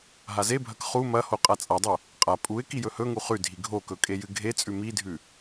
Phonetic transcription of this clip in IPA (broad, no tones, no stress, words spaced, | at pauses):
ɦazebʱɐk χu mɐho qʼat͡sʼadˤo | qʼa pʼuɪ̯ kijɵhɵŋu χʉdʱi ɡʱokɵ kʼejɨɡʱet͡sʼʉ midʱʉ